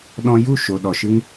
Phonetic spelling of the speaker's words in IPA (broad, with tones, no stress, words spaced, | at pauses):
ɗɔ̃˧ju˦˨ʃo˨ ɗɔ˨ʃɨ˧ŋ